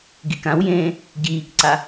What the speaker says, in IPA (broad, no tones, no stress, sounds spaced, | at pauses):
ɡ i k ã w j ẽː | ɟ iː k ǀ a